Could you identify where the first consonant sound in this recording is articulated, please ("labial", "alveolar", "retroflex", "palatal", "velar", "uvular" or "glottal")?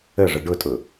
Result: retroflex